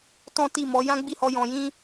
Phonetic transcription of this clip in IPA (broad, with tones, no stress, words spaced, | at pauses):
tɔ̃˦ti˦˨mɔ˨˦ jã˦ɡ͡bi˦˨hɔ˧ jɔ̃˨jĩ˧